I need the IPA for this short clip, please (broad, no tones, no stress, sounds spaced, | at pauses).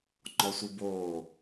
ŋ͡ǃ ɔ sʷ i b oː